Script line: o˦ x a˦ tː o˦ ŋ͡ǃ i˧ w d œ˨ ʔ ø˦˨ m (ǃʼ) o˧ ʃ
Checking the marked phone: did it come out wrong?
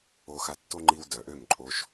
no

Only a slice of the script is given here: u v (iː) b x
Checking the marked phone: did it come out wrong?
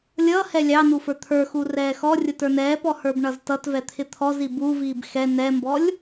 no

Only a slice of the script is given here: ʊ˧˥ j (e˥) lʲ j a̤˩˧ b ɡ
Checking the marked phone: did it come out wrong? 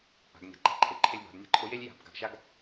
no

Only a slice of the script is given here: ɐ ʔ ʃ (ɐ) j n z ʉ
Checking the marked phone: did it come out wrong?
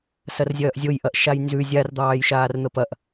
yes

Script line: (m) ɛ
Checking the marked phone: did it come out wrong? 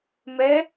no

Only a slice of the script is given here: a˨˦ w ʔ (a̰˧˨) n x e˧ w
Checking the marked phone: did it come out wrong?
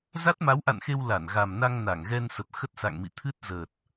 no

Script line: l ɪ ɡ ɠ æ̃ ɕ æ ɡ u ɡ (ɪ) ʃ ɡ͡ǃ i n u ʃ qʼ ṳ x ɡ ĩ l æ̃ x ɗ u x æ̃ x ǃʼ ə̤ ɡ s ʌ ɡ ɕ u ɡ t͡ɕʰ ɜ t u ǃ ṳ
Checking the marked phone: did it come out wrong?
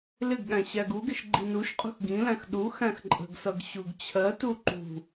no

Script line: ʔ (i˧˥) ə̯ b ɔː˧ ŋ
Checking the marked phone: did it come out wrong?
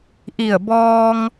yes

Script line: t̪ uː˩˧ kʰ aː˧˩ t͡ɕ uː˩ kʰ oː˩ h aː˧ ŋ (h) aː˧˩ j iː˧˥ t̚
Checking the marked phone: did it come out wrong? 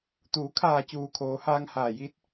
no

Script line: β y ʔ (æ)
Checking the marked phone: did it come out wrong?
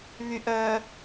yes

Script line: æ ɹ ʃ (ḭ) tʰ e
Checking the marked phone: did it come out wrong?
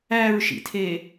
no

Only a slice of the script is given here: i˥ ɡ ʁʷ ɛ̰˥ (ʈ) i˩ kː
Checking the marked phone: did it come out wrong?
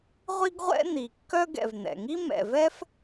yes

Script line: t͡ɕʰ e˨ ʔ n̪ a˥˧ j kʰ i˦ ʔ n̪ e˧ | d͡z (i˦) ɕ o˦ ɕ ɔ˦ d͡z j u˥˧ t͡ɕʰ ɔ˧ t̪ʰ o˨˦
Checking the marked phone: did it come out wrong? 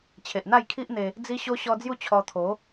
no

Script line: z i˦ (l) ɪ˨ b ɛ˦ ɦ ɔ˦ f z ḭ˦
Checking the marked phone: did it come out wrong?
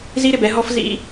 yes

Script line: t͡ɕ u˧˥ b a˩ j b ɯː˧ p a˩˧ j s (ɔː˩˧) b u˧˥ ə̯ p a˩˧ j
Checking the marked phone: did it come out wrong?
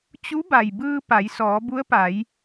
no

